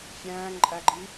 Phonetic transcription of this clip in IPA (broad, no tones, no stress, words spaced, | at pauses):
fʲæ̃ːŋǃʼæɡ͡ǃi